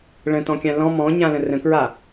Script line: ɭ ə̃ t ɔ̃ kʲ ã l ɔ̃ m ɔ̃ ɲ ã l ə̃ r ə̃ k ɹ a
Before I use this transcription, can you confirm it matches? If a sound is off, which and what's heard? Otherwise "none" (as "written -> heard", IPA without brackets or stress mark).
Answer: none